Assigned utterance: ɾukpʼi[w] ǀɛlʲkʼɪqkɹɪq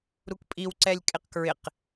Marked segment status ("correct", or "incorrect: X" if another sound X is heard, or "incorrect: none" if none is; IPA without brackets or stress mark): correct